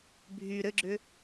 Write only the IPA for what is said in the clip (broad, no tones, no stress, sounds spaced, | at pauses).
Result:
bʱ y ɾ ɘ ɡ͡ǁ ʏ